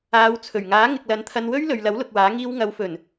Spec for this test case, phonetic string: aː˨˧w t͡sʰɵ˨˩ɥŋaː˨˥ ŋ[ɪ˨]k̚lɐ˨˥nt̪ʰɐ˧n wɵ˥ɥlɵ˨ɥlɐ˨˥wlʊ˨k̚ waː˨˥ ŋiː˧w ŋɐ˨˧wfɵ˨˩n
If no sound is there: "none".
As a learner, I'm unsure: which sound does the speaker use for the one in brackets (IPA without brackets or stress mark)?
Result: ɪ˨